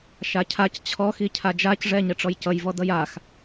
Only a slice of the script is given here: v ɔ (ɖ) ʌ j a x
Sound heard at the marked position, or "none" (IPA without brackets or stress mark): d